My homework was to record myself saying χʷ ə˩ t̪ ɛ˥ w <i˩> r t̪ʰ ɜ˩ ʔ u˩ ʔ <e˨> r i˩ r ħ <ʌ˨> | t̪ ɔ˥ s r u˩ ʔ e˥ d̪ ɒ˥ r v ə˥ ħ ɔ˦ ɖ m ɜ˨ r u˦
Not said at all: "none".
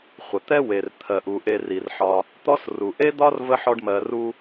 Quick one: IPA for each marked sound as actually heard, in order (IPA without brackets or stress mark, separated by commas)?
e˩, e˨, ɒ˨